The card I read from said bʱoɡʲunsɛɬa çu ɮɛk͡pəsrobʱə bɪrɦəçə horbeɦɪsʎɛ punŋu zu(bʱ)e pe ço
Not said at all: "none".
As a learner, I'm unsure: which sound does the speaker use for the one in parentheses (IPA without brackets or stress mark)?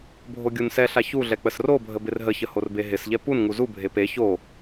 bʱ